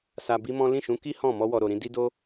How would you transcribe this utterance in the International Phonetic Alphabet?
s a˧ b i˦ m ɔ̃˦ l ĩ˦˨ ʃ ũ˨˦ k i˦ h ɔ̃˦˨ m ɔ˧ w ɔ˨ ɾ o˨ ɾ ĩ˧ d i˦ d o˦

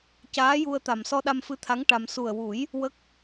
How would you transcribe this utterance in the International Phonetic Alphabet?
c aː˧˥ j u˧ ə̯ t̪ a˨˩ m s ɔ˧ ɗ a˧ m f ɨ˧˥ t̪ʰ a˧˥ ŋ ʈ a˧ m s u˨˩ ə̯ w u˨˩˦ j | w ə˦˥ k̚

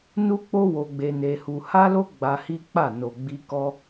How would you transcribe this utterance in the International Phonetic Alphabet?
n u˦ k͡p o˦ w o˧ ɡ͡b e˧ n e˧ h u˧ h a˦ l o˦ ɡ͡b a˧ h i˦ k͡p a˦˨ n o˨ ɡ͡b i˧ k ɔ˦

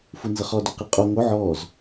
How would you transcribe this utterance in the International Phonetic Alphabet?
f u n z ə χ ɔ d o q i qʼ o ŋ o ʕ ɔ z

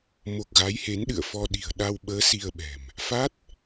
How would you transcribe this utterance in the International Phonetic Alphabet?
m o˨˩ k̚ ɣ a˨˦ j h e˨˦ n ɗ ɨ̰˧˨ ə̯ f ɔ˧ ɗ i̤˨˩ ə̯ ɗ a˧ w ɓ əː˨˦ s i˧ ə̯ ɓ ɛ̤˨˩ m | f a˦˥ t̚

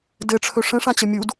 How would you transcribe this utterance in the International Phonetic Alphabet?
d ɘ ʈ͡ʂʰ ɵ ʂ ə̃ ʂ ã t͡ɕ ə mʲ u d

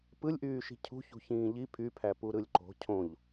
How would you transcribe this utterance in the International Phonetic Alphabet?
p ɯ lʲ ʔ yː ʃ i̤ cʰ ṳ ç ṳ ç ĩː ʎ i pʰ y pʰ æ p u ɾ ɯ lʲ ǃ o̤ cʰ õ ʎ

